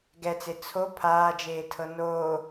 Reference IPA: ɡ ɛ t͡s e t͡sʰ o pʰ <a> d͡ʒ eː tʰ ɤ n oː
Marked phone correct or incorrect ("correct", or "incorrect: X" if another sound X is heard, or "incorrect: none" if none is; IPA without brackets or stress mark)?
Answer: incorrect: aː